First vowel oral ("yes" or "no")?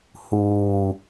yes